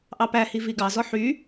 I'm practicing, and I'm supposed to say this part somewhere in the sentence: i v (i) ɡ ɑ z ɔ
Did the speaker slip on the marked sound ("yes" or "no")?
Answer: no